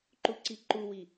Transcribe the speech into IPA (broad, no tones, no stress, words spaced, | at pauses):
ǃuǀiǃuwi